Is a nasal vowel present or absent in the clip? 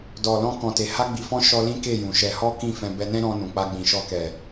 present